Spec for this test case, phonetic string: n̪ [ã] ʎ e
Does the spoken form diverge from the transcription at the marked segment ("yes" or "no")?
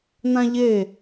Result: no